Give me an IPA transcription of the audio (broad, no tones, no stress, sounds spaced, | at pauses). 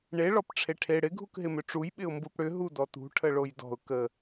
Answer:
ɳ e ɭ ɔ p ʈ͡ʂʰ e ʈʰ e ɽ ɪ ɡʱ u k ɦ ɪ m ʏ ʈ͡ʂ u j ɓ ɪ ʊ̯ m b u p ɽ ʏ ɦ u d ɔ t ṳ ʈʰ ə ɭ o j d ɔ̤ ʊ̯ k ə